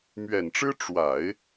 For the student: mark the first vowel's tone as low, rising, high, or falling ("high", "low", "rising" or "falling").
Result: low